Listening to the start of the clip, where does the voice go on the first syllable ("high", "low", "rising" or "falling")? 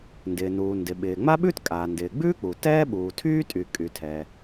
low